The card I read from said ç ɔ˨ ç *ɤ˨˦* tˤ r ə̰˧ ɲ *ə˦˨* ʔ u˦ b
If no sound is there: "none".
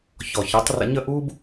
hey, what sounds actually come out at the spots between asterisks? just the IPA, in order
ɤ˨˦, ə˦˨

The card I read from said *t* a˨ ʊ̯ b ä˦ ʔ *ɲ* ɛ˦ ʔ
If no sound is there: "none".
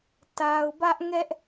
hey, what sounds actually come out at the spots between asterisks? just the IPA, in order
t, ŋ

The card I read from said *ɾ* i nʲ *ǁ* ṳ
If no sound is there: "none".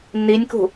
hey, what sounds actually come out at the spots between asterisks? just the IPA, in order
n, k

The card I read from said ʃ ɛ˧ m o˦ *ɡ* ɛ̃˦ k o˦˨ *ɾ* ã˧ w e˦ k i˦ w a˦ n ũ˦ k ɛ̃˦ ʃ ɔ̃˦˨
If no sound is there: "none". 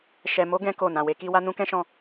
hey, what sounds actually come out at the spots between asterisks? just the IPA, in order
ɡ, n

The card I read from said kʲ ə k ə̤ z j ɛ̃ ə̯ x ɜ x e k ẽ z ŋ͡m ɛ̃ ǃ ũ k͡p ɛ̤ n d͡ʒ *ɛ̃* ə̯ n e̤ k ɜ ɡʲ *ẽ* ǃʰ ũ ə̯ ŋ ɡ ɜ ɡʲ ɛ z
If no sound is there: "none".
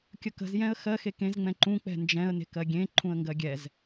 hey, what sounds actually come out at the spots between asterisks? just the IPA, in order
ɛ̃, ẽ

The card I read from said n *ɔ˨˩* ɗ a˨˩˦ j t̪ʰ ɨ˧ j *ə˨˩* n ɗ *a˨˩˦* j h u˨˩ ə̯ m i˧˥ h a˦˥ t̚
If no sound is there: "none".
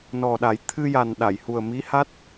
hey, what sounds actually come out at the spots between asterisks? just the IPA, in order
ɔ˨˩, a˨˩, a˨˩˨

